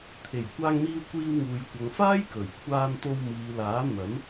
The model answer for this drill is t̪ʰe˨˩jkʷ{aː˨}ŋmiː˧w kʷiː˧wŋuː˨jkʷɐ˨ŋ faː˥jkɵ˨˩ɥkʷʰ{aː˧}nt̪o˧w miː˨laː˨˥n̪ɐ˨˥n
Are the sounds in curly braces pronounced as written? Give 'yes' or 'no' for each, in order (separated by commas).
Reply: no, yes